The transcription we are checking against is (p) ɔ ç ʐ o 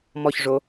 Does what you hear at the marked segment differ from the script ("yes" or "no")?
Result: yes